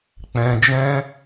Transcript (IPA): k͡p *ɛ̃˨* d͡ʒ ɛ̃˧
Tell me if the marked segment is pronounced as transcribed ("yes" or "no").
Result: yes